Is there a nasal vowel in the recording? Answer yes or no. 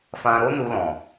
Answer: yes